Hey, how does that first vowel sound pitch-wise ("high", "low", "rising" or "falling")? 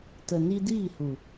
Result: low